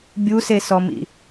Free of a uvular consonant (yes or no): yes